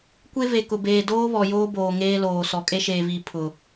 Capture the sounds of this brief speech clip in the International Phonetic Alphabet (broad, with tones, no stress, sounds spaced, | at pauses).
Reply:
kʷ e˦ v e˨ k ʊ˨ b eː˨ d oː˦ β ɔ˨ j oː˦ b oː˨ ŋ eː˦ l oː˨ s ɔ˨ kʼ e˦ ʃ eː˨ v iː˨ pʰ ʊ˨